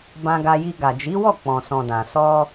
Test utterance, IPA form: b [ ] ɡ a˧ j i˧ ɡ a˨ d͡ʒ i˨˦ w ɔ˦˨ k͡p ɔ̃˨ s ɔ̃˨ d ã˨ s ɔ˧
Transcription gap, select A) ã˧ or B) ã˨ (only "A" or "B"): A